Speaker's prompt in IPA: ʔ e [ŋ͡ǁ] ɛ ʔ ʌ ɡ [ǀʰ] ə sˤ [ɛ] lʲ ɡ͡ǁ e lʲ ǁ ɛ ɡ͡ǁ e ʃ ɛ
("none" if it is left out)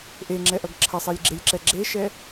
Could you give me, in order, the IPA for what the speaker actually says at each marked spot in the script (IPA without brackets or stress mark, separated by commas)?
ŋ͡ǁ, ǁʰ, e